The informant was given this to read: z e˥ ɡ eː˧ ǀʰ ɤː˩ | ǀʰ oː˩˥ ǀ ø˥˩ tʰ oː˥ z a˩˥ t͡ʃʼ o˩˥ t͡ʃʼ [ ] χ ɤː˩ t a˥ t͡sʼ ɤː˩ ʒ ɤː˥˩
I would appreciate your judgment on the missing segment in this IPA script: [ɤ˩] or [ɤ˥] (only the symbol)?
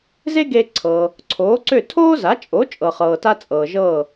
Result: ɤ˩